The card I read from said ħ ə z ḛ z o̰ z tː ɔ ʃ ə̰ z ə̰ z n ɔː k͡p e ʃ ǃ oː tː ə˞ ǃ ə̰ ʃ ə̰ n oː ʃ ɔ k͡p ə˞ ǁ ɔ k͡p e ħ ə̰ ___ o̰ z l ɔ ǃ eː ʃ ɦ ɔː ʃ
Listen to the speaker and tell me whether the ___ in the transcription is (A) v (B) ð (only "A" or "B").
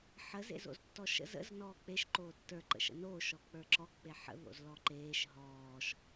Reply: B